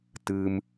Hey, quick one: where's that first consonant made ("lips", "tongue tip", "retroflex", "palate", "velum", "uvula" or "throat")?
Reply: tongue tip